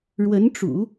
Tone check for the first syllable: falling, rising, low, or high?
rising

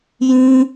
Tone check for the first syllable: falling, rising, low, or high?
high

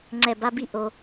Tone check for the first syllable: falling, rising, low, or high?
low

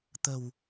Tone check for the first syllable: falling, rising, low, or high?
low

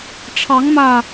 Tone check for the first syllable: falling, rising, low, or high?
rising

